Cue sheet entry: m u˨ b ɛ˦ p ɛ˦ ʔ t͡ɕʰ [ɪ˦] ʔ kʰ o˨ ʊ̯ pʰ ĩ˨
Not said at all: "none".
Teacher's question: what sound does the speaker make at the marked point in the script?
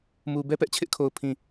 ɪ˦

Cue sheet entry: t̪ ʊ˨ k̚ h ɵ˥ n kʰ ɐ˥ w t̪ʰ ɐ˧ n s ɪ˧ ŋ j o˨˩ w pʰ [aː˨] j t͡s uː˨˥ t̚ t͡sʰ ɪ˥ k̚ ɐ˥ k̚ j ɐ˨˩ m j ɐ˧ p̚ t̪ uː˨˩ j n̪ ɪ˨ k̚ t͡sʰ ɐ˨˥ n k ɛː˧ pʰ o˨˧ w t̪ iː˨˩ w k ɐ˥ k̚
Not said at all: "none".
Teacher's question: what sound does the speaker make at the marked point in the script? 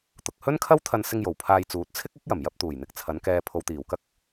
aː˧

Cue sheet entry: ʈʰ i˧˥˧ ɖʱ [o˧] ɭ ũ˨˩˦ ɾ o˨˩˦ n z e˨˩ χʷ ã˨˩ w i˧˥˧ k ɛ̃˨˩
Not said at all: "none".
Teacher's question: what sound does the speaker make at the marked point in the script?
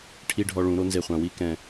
ɔ˧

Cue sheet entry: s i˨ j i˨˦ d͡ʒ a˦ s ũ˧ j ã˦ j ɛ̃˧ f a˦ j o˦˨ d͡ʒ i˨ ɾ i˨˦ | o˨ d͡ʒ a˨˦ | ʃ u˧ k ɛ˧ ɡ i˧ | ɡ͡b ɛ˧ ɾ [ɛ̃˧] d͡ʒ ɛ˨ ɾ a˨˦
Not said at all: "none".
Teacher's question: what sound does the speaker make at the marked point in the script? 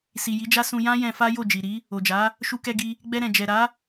ɛ̃˨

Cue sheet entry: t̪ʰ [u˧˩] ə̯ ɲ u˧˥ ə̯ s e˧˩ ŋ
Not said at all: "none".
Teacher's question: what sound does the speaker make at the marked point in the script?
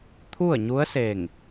u˥˨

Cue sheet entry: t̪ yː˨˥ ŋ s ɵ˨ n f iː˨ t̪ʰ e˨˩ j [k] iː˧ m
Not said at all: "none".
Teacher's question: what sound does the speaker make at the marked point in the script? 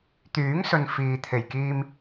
k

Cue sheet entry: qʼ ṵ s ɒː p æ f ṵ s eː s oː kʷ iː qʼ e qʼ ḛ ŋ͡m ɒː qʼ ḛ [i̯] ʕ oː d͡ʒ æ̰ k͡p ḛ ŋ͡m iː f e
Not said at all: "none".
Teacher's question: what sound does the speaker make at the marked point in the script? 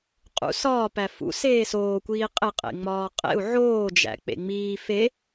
u̯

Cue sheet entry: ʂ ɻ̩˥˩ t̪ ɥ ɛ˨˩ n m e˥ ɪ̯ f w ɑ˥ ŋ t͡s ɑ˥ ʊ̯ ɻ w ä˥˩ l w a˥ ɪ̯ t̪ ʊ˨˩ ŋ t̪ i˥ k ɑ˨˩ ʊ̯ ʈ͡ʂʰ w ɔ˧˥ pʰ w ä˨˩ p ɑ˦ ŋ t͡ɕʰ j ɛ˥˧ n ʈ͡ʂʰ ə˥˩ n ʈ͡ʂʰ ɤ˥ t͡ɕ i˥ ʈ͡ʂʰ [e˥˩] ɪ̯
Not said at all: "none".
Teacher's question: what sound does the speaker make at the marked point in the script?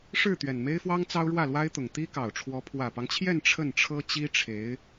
e˧˥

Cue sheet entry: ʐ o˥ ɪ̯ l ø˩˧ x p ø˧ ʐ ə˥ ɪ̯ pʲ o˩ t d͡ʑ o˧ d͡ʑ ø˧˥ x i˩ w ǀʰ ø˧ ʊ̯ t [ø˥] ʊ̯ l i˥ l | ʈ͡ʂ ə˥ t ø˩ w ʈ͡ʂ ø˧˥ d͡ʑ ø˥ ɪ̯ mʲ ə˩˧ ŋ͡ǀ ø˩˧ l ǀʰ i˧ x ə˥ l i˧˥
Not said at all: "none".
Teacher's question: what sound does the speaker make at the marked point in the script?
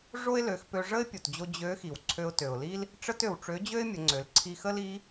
ø˩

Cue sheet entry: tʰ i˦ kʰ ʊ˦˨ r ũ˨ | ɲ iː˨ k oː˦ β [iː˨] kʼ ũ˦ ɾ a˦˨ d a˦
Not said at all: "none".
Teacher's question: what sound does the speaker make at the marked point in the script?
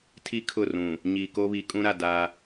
i˨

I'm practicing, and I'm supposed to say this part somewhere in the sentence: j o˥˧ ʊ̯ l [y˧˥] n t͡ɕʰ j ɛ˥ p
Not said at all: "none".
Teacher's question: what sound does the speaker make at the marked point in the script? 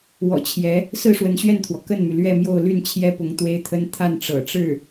y˥˩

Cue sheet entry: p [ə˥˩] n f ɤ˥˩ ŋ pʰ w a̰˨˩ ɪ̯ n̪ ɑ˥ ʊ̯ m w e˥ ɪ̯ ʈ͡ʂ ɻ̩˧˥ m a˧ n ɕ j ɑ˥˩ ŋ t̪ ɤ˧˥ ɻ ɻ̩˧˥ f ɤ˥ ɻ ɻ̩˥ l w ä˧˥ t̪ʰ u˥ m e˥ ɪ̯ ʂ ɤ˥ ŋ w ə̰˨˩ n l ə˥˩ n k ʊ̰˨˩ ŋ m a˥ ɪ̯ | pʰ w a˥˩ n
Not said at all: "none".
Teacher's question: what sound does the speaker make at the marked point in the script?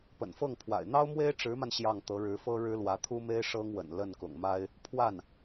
ə̰˨˩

